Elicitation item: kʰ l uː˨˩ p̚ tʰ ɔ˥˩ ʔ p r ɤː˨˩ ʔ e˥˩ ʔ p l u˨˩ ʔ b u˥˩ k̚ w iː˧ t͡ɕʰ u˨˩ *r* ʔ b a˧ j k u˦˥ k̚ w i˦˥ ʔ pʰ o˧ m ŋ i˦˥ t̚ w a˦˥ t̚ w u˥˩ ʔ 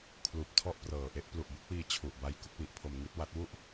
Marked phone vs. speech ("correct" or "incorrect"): incorrect